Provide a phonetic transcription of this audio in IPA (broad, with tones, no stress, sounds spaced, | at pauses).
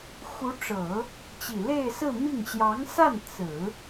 x u˧˥ ʈ͡ʂ ɤ˨˩˦ | t͡ɕ i˨˩ l e˥˧ ɪ̯ s ɹ̩˥˧ m i˥˩ ŋ ɕ j ɑ˧˥ ŋ s a˥˩ n t͡s ɹ̩˨˩˦